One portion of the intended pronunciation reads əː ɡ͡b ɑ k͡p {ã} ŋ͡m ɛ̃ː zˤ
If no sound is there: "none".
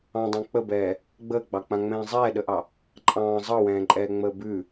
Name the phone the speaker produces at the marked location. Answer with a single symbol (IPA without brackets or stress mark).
ã